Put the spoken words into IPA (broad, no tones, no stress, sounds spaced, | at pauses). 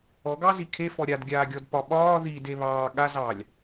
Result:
ɔ ɡ ɑ z i kʰ e f ɔ ɾʲ a d ɡʲ aː ɡʲ ɔ d p ɒ ɓ ɒː ð i d e β ɑː ɠ a z ɑː lʲ